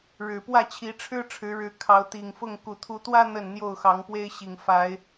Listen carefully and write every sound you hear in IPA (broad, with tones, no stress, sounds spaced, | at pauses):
ɻ ɻ̩˨˩ p w ä˥˨ t͡ɕʰ i˨˦ ʈ͡ʂʰ ɻ̩˦ ʈ͡ʂʰ ɻ̩˨˦ ɻ ɻ̩˨˦ kʰ ɑ˨˦ ʊ̯ t̪ i˨˩ ŋ f ʊ˥˨ ŋ k u˨˩ t̪ʰ u˨˦ t̪ w ä˦ n̪ ə˥˨ n n̪ j o˥˨ ʊ̯ x ɑ˨˦ ŋ p w e˦ ɪ̯ ɕ i˨˩ ŋ f a˨˦ ɪ̯